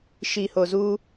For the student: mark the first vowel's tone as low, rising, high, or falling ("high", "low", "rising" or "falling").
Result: low